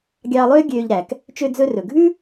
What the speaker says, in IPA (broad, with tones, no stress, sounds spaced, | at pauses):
ɡʲ ɑː˧ lˠ øː˥ ɡʲ øː˧ ʎ ɾ æ˩ k | t͡ʃ ø˧ d͡z ɵ˧ r ɵ˩ ɡʱ ʉ˥